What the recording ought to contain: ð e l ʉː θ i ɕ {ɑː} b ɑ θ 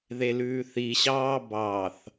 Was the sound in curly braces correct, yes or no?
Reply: yes